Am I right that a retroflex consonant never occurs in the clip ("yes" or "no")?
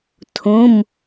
yes